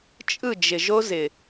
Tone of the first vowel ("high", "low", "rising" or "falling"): falling